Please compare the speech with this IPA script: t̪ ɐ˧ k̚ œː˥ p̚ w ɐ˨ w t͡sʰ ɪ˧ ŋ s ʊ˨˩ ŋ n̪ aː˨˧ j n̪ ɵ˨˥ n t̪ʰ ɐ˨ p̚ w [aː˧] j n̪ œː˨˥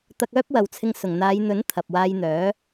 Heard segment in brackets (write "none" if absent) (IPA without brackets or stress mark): aː˧